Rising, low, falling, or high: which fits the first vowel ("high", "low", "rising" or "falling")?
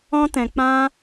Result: high